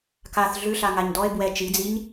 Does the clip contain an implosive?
no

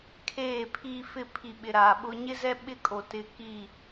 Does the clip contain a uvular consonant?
no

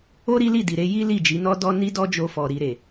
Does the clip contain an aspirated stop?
no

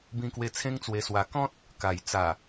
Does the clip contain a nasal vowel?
yes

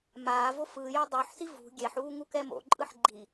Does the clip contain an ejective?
yes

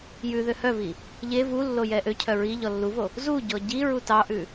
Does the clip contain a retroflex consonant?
no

